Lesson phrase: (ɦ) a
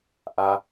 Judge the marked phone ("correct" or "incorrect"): incorrect